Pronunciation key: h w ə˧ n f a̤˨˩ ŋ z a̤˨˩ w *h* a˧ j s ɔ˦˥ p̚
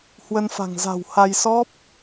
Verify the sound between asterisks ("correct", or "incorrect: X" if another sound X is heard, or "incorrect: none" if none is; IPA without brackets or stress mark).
correct